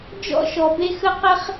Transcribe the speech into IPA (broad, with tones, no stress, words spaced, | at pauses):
d͡ʒɔ̰˥ʃɔ˧ be˥xə˥ qɛ˥χ